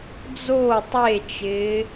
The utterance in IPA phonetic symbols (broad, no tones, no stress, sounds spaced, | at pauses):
d͡z o tˤ e t͡ʃ ɪː